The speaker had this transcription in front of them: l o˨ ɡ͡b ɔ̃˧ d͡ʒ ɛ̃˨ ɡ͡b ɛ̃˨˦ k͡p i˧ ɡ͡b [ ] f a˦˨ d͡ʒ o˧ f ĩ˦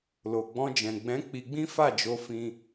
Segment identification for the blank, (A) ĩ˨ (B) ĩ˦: B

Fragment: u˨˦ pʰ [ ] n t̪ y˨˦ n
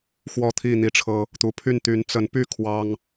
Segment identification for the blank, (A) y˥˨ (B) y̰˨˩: A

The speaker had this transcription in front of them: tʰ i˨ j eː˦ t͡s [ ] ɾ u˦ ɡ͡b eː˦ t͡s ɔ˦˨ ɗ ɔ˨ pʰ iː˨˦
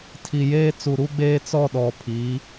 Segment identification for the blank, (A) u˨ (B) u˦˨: A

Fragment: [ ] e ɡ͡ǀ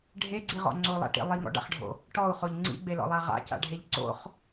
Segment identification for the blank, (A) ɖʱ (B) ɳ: A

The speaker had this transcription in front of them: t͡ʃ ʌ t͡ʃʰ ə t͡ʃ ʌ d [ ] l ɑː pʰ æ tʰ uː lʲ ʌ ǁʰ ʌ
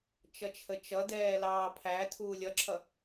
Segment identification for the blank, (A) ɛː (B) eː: A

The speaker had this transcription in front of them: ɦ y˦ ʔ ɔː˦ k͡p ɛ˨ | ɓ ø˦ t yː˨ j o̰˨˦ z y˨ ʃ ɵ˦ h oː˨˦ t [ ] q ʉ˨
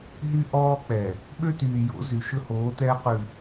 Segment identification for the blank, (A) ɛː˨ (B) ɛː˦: B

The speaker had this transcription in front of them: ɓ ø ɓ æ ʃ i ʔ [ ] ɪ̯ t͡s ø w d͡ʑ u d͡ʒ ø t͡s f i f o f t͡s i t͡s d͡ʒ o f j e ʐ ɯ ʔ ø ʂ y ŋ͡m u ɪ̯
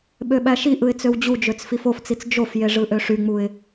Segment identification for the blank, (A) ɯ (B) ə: A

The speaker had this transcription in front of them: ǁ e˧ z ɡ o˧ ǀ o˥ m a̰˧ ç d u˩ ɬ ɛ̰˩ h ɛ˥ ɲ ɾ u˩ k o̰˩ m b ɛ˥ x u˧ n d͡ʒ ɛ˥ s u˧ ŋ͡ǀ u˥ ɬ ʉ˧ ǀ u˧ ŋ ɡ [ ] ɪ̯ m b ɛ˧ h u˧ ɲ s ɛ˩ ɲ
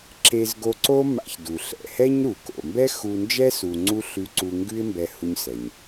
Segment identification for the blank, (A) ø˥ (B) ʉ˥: B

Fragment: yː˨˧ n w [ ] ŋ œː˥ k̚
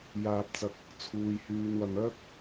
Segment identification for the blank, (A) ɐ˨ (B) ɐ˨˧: B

